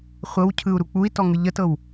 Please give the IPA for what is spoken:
χʷ ɤ w cʰ ɯ u̯ ɾ u k͡p u i̯ t ɔ ŋ ɯ ʎ ə t ɤ w

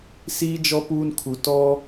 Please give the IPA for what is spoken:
s iː˦ d͡ʒ ɔ˦ p uː˦ n kʰ u˨ t ɔ˦

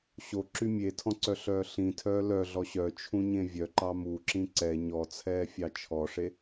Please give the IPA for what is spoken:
ɕ o ǁ y mʲ e tʰ ɔ̃ ǀ œ ɬ œː ɬ ĩ tʰ œː l œ ɮ ɔ ɕ œ t͡ʃʰ ũ ɲ ẽ vʲ œ ǃ ɑ m u ǁ ĩ ǀ ɛ ɲ ɔ t͡sʰ ɛː fʲ ɑ t͡ʃʰ ɔ ʂ e

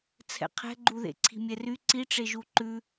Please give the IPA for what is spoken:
t͡sʰ ɛ̰ qʰ ɛ̤ ɡ͡ǃ u ð ḛ ǀʰ i̤ mʲ ɛ r y ǀ i ʈ͡ʂ e ʒ u ǃ ʉ

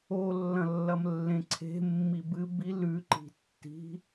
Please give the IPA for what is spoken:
o lː ɐ̃ lː ɐ m lː ẽ ǀʰ e̤ mː i b ɨ b i l ʉ ǃ i̤ tː i̤

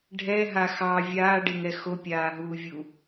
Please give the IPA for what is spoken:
ɖʱ ɛ ɦ a x ɑ vʲ aː ɖ e ŋ ɛ x o pʲ aː ɦ uː vʲ u

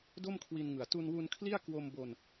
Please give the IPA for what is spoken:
d o˥˩ m kʰ w i˧ n ŋ ɯ˨˩ a̯ t u˧ n w u˧ n kʰ l i˥˩ a̯ k w o˧ m b o˧ n

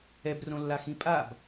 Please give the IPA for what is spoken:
ɛ b r õ lː a x ĩ pʼ a b

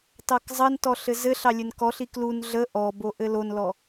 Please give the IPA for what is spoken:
t ɑ k zˤ ə n t ɔ ɬ ɘ z ɘ ɬ ɑ lʲ ɘ n k ɔ ɬ i k l u n ɮ ə ʔ ɔ b o ʔ ɘ l o n l ɔ

